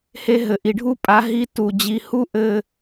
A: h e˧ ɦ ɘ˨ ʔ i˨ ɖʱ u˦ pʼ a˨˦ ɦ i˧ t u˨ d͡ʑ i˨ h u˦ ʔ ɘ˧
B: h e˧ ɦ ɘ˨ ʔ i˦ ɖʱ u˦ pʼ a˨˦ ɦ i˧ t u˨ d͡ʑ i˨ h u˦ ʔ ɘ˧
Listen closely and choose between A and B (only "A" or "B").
A